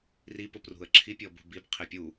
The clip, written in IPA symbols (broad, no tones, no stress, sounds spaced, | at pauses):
r i p ʊ p r ṳ ə̯ ǁʰ i pʲ ɔ b ṳ b i b qʰ ɪ pʲ u